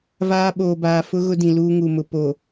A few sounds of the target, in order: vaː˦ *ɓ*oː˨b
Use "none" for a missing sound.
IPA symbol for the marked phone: ɓ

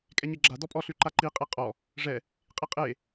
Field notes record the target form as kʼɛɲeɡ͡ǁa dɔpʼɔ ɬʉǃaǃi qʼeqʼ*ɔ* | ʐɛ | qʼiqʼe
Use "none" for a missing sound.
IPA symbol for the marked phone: ɔ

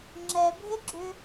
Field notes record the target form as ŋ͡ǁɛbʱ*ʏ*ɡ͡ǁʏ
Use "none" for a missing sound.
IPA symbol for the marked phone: ɪ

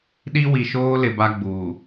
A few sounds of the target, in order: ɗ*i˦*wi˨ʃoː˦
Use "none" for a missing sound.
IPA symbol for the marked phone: i˦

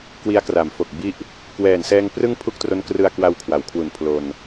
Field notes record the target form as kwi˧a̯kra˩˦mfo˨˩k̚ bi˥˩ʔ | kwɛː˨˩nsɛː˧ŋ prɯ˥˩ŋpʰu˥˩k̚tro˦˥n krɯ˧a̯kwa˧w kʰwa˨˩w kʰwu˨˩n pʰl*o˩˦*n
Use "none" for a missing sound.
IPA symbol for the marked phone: o˧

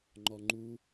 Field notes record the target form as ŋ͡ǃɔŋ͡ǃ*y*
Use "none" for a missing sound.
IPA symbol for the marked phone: u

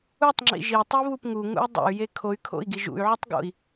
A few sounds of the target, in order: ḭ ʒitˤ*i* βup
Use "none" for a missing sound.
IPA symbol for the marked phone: i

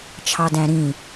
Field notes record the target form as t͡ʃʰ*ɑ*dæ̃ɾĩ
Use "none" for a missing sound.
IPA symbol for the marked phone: ɑ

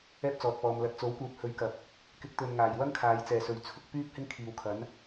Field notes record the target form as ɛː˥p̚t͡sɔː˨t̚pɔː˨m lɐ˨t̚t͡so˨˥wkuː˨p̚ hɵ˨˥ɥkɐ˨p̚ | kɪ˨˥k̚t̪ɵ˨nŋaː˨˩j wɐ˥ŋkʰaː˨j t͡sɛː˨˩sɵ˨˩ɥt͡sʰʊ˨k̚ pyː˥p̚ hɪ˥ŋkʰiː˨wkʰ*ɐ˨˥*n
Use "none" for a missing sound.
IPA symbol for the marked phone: ɐ˨˥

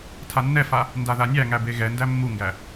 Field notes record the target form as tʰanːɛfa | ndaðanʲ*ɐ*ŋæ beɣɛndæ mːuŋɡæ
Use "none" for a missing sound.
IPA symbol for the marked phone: æ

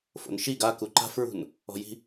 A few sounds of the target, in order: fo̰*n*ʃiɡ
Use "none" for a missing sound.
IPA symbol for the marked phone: n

